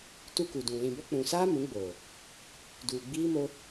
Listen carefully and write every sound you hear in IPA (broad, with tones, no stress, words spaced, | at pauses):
tu˦ku˨dũ˨ lĩ˨bɔ˦ k͡pũ˨saː˦ mũ˨˦ɡ͡boː˨ | duː˨ɡ͡biː˦mo˦